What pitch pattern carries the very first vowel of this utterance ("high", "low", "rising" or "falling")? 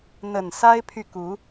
low